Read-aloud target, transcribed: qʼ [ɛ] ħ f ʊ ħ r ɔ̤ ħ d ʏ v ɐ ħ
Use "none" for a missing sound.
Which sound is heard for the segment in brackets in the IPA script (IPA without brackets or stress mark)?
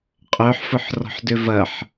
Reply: œ